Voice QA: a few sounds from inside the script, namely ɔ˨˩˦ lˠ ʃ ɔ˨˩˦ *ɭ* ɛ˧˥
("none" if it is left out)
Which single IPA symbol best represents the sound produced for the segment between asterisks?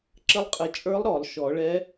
ɭ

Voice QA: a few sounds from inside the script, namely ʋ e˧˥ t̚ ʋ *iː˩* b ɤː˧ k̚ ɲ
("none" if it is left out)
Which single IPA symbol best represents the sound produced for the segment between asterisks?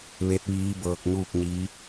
iː˧˥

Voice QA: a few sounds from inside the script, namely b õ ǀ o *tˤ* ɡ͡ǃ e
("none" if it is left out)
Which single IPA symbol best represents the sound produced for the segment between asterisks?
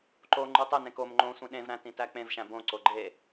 none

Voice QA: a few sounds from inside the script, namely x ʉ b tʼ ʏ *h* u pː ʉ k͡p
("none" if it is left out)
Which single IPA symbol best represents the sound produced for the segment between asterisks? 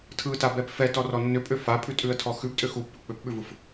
x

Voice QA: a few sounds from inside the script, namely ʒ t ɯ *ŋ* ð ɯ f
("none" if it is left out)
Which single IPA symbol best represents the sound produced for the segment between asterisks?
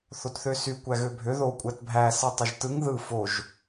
ŋ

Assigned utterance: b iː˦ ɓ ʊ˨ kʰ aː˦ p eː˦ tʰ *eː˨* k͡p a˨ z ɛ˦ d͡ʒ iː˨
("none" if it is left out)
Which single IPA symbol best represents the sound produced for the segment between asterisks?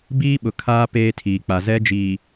iː˨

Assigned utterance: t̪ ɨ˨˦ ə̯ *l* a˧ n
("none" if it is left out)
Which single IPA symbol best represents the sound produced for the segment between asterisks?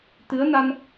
n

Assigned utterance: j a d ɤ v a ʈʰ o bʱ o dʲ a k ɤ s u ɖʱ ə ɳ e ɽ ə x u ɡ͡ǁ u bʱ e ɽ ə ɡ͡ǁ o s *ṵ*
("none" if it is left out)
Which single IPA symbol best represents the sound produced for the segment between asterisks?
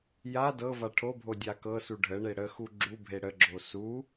u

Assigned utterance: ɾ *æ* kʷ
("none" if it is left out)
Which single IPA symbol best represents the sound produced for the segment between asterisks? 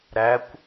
æ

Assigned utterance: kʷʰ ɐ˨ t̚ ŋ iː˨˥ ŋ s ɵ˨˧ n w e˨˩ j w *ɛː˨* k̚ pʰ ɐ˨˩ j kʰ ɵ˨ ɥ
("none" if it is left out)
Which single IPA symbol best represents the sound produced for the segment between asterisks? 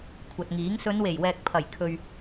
ɛː˨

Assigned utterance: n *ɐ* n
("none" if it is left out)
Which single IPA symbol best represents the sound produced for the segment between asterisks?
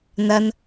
ɐ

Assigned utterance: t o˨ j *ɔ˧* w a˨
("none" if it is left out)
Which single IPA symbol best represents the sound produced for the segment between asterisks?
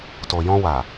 ɔ̃˧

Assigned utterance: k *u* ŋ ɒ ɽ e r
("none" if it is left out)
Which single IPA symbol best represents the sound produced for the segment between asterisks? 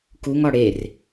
u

